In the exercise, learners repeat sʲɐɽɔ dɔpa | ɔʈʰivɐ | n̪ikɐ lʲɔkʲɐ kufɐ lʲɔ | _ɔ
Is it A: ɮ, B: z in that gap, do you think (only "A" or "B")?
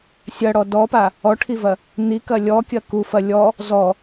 B